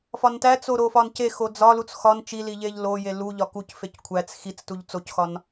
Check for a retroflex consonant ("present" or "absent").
absent